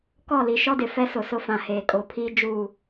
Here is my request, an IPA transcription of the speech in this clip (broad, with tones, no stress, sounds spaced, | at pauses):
k ɔ˦˨ l i˨ ʃ ɔ˦ d ɪ˨ f ɛ˦ s ʊ˨ s ʊ˦ f ã˨ h eː˨ kʼ o˨ pʰ iː˦ d͡ʒ uː˦˨